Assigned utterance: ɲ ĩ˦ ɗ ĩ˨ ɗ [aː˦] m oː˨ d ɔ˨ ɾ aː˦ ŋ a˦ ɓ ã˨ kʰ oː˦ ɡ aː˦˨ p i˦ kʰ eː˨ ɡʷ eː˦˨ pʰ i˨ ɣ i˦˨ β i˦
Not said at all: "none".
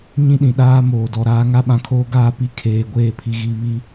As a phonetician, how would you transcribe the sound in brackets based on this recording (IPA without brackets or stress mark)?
aː˦